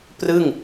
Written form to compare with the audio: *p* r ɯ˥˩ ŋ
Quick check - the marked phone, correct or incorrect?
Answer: correct